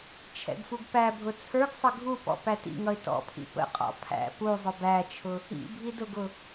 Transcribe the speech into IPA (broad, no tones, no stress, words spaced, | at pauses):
t͡ʃʰɛ̰ɡfuɡpæbʱʊ t͡sʰə˞ɡsˤə ɡʱupɔ̰ pætḭŋʌɪ̯ tɔ̰pʰḭ pə̰qʼɔ̰ pʰæ̰ pu zˤʊbæt͡ʃʰʊ | ḭ bʱidʊɡʊ